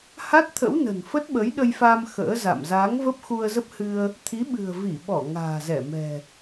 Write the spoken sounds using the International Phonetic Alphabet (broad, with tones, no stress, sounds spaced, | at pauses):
h a˦˥ t̚ t̪ʰ ə̰˧˥ w n ə̤˨˩ n f ə˦˥ t̚ ɓ ə˨˦ j ɗ ə˧ j f a˧ m x ə̰ː˧˥ z a̰˧˨ m z aː˨˦ ŋ v ə˦˥ p̚ x u˧ ə̯ z ə˦˥ p̚ h ɨ˧ ə̯ | t̪ʰ i˨˦ ɓ ɨ̤˨˩ ə̯ v i˧˩ ɓ ɔ˧˩ ŋ a̤ː˨˩ z ɛ˧˩ m ɛ̤˨˩